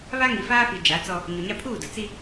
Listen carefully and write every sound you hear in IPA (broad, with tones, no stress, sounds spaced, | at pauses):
β a˦ ŋ i˨ f aː˦ f i˨ d͡ʒ a˨˦ t͡s ɔ˦ | ɲ o˨ ɲ a˦ pʰ uː˦˨ d ʊ˨ t͡s i˦